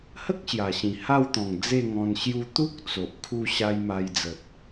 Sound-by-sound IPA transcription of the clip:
h ə˦ k̚ ɕ j a˨˩ ɕ ĩ˨˩ h a˥˧ w t̪ ɔ̃˨˩ ŋ d͡z e˥˧ ŋ ɔ̃˧ n ɕ j u˧ t̪ u˦ k̚ t͡s o˨ ʔ kʰ u˥˧ ɕ a˦ j m a˧ j d͡z ə˨ t̚

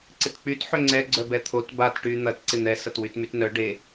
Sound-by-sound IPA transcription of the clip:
ǀ ɪ t k͡p y t ħ ʏ ŋ͡ǀ ɛ ɡ͡ǀ œ b ɛ t̪ʰ o t b a t ʈ y n̪ ɐ t ǀ ɪ n̪ ɛ s ɐ t w y t m y t n œ ɖ e

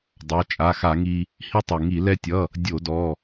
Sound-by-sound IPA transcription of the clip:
dˤ ɑ˩˧˩ t͡ʃʼ a˩˧˩ x a˧˩˧ ŋ i˧ | h i˧ tˤ ɛ˩ ŋ i˧˩˧ l ɛ˧ tʲ ʌ˩˧˩ | dʲ o˧˩˧ d ɔ˩˧˩

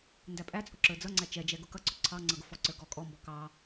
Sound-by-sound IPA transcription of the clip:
n d æ pʼ æ t͡sʼ ʊ ǁ ə˞ d͡z ʌ ŋ͡ǀ æ t͡ʃ ɛ d͡ʒ ɛ ɡ ʊ k ʌ ǀ ʊ ǀʰ ɑ ŋ͡ǀ ʌ ɡ ʊ f ɔ ǀ ə˞ ɡ ɔ kʼ ɔ m b ɔ k ɑ

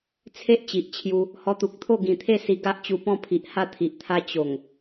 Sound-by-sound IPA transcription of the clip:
t͡sʰ e˦ ʔ t͡ɕ i˨ ʔ t͡ɕʰ j u˧ | h ɔ˧ t̪ u˨ k̚ t̪ʰ o˥˧ ɡ ĩ˨˩ t̪ʰ e˥˧ s i˧ ɡ a˦ ʔ t͡ɕ u˧ p ɔ̃˥˧ pʰ i˨ ʔ h a˥˧ t̪ʰ i˨ ʔ t̪ʰ a˦ t͡ɕ o˨˩ ŋ

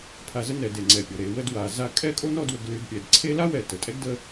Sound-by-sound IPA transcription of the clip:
pʰ a˧ z ə˥ n ɛ˩˧ d e˧˩ ŋ͡ǀ ɛ˧˩ pʲ ɔ˩˧ ɾ e˩˧ w ə˥˧ d w a˩˧ z a˥˧ kʼ ɛ˥˧ kʼ o˥ n ɔ˥˧ d w ə˧ ɡ l y˧ d pʲ ɛ˩˧ d ǀʰ e˥ l a˥ w ɛ˧˩ t ə˩˧ tʼ ɛ˥ ɡ d ə˥˧

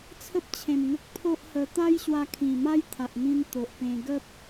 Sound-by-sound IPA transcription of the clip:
t͡sʰ ə˦ p̚ t͡ɕʰ ẽ˨˩ m ŋ ə˦ k̚ pʰ o˦ ʔ h ə˧ t̪ a˦ j ɕ w a˧ kʰ ĩ˨˩ m a˦ j t̪ʰ a˨ ʔ n̪ ĩ˧ n t̪ o˨ ʔ p ẽ˧ ɡ ə˦ p̚

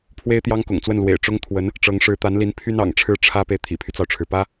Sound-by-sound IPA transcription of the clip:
pʰ w e˥ ɪ̯ t̪ j ɑ˥ ŋ k ʊ̰˨˩ ŋ t͡s w ə˥˩ n l w ḛ˨˩ ɪ̯ ʈ͡ʂ ʊ˥ ŋ t̪ʰ w ə˧˥ n | ʈ͡ʂ ɤ˧˥ ŋ ʂ ɻ̩˧˥ t̪ a˧˥ n l i˧˥ n pʰ y˥ n ɑ̰˨˩ ŋ ʈ͡ʂʰ ɻ̩˥˩ ʈ͡ʂʰ ä˥ p e˨ ɪ̯ t̪ʰ ḭ˨˩ pʰ y˦ t͡s ɑ˩ ʊ̯ ʈ͡ʂʰ ɻ̩˩ p ä˥

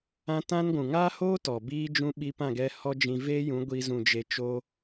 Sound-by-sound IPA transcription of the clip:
ã˦ t ã˦ n ɡʷ ũ˨ ŋ aː˦ h oː˦ t ɔ˨ b iː˦ d͡ʒ ũ˦ ɓ i˧ p ã˦˨ ɡ ɛ˧ h ɔ˦ d͡ʒ ĩ˧ v eː˦ j ũ˨˦ ɡʷ i˧ z ũ˨ d͡ʒ e˨ t͡ʃ o˧

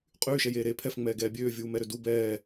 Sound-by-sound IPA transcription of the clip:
qʼ yː ʃ ɛ j eː ɾ eː pʰ ɛ f ŋ͡m ɛː ɡ ɛː bʲ øː vʲ uː m ɛ ɾ ø d u b ɛː

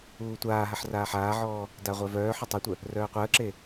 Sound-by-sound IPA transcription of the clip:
uː tʷ aː ɦ a ħ r aː ħ aː ʕ ɔː | d a ʁʷ œ v œː ħ œ tˤ ɛ tʷ œ | r œː qʷ əː ǁ e

